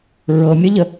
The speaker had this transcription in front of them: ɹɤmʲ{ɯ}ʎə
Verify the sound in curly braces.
incorrect: ə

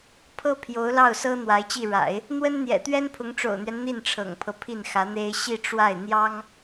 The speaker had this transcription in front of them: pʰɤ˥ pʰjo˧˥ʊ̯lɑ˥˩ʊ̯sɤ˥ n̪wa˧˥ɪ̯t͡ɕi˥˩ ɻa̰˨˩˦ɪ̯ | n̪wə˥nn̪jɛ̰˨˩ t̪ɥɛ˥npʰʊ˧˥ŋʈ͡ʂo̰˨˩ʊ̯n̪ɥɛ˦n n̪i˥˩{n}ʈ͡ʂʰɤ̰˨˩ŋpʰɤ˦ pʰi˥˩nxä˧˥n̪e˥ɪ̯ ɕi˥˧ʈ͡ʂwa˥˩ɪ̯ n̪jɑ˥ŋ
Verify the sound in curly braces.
correct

